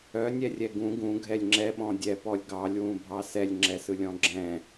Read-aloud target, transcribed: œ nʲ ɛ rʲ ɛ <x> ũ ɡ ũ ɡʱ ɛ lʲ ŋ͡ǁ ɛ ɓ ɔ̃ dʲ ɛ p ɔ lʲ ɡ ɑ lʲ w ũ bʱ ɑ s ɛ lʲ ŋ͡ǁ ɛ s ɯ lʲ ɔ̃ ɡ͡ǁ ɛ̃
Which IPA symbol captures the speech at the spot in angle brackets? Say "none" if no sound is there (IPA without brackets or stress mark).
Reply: ɡ